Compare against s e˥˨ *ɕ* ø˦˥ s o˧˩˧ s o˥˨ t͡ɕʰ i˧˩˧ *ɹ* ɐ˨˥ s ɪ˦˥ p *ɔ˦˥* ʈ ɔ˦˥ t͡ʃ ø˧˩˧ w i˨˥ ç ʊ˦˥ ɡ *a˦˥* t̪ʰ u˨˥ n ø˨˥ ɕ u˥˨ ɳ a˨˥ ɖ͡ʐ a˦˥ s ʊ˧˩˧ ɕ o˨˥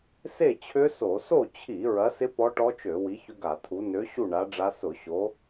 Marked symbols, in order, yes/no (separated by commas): no, yes, yes, no